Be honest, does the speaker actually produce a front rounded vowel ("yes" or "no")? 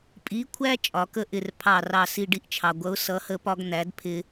no